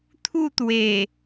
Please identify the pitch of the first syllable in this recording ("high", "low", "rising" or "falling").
falling